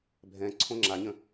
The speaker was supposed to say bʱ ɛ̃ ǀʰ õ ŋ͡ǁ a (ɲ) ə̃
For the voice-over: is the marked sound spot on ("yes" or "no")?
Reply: yes